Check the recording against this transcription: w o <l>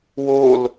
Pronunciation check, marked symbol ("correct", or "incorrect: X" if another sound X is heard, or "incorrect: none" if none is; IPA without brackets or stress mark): correct